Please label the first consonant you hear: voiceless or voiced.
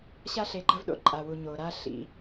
voiceless